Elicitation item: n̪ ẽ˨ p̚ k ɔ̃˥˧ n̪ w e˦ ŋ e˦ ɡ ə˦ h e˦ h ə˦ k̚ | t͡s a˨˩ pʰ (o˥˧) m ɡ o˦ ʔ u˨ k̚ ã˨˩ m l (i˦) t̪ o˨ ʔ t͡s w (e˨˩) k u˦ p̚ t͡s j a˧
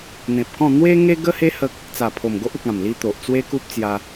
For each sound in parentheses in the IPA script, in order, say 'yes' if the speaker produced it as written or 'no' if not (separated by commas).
no, yes, no